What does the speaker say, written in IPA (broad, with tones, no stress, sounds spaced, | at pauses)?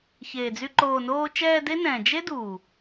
ç eː˨ d͡z y˧ ǃ oː˨ n oː˧ t͡ʃ ɛː˧ d e˦ n ɛ̃ː˨ d͡ʒ e˦ d uː˨